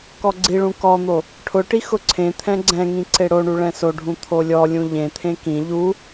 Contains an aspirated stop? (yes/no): yes